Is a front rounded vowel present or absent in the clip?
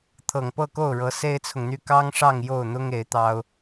present